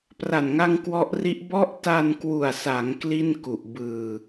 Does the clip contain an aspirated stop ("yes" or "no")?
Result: no